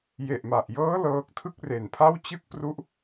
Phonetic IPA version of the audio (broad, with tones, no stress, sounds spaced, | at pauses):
j e˨˩ ʔ m a˨˩ ʔ j ɤː˦˥ l ɤː˦˥ k̚ tʰ ɯ˥˩ k̚ r e˨˩ n pʰ a˥˩ w t͡ɕ ɯ˥˩ k̚ p r u˦˥ ʔ